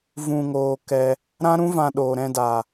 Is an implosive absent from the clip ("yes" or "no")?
no